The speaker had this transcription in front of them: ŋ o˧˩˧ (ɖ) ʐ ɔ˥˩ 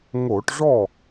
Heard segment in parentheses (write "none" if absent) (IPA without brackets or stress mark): ʈ